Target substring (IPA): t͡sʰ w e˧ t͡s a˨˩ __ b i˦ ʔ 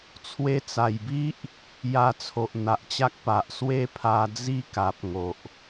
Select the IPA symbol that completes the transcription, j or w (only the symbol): j